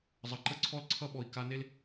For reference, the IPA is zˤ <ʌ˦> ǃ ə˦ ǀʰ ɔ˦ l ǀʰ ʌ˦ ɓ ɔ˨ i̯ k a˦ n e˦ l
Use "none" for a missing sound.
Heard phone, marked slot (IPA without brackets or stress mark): ʌ˨